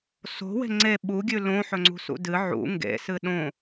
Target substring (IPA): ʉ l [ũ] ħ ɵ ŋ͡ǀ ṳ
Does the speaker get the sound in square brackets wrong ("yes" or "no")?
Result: yes